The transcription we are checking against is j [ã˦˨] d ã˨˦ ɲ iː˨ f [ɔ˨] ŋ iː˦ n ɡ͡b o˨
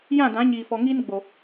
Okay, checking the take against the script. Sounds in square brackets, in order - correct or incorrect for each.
correct, correct

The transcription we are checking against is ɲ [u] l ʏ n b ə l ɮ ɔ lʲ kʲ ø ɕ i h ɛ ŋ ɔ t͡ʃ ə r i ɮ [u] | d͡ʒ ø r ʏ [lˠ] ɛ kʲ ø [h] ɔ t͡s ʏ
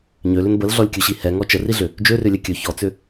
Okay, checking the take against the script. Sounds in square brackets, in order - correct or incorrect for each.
incorrect: ø, incorrect: ʏ, incorrect: lʲ, incorrect: ç

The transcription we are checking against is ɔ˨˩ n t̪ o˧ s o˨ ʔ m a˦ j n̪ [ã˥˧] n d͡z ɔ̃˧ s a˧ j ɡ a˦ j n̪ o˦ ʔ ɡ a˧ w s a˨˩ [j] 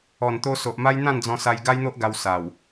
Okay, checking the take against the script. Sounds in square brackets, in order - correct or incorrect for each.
correct, incorrect: w

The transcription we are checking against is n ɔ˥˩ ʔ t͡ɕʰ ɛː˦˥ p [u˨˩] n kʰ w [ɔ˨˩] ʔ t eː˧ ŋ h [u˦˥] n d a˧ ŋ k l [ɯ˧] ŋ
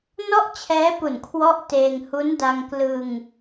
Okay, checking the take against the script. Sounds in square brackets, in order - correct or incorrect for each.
correct, incorrect: ɔ˦˥, correct, correct

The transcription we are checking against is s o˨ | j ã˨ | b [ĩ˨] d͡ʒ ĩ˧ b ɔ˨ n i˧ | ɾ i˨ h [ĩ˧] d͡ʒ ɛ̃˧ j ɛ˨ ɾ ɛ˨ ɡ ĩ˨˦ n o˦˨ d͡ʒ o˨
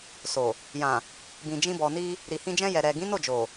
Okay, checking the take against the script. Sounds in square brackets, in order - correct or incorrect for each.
correct, correct

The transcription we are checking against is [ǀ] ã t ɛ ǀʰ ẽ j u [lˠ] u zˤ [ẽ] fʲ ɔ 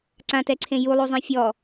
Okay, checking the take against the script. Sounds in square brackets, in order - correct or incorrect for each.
correct, correct, correct

